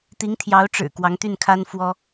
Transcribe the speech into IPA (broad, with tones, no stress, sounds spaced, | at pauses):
t̪ i˧˥ ŋ t̪ʰ j ɑ˧˥ ʊ̯ ʈ͡ʂ ɻ̩˨˩ k w ɑ˧˥ ŋ t̪ y˥˩ n kʰ a˥ n f w ɔ˥